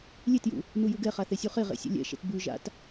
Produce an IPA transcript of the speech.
lʲ e t j ṵ | n u j u ɡ ɛ χ a θ e sʲ u χ e ʁ ḛ sʲ ɛ̰ lʲ ɛ̰ ʃ ɛ̰ t b ʉ ʒ a̰ t

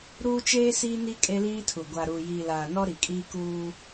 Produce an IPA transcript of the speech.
ɾ uː˦ t͡ʃ eː˦ s iː˦ n i˦ kʼ e˦ l iː˦ tʰ u˨ ɡʷ a˨ ɾ uː˨ j iː˨ l aː˨ n ɔ˦ ɾ i˨ kʼ iː˦ k uː˦

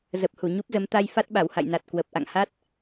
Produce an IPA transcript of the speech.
z ə˨˩ p̚ h u˧˩ ɲ u˦˥ p̚ z ə˨˦ m t̪ a˧ j f a˦˥ t̚ ɓ a˧˩ w h a̰˧˨ j n a˨˩ t̚ k w ə˨˩ p̚ ʔ a̰˧˨ ŋ h a˦˥ t̚

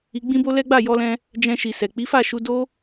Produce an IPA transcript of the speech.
i˧ ɡ͡b ĩ˦ b o˦ l ɛ˦ ɡ͡b a˦˨ j ɔ˧ l ɛ̃˧ | d͡ʒ ɛ̃˧ ʃ i˨ s ɛ˨ k͡p i˨˦ f a˦˨ ʃ u˧ d o˦

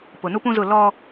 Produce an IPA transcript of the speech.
p ʊ˨ n u˦ p ũ˦ z ʊ˦˨ l ɔ˦

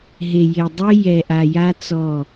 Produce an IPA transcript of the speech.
ɦ e˨ j e˨ dˤ i˦ j ɛ˨ ʔ a˨ j a˦ t͡s ɔ˦˨

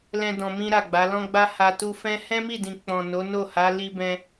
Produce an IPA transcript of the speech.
l ɛ̃˧ d ɔ̃˧ m ĩ˦ ɾ a˦˨ ɡ͡b a˨˦ l ɔ̃˦ ɡ͡b a˦ h a˧ t u˧ f ɛ̃˦ h ɛ̃˦ m i˦˨ d ĩ˨ k͡p ɔ̃˨ n o˨˦ n o˦˨ h a˨˦ l i˧ b ɛ̃˧

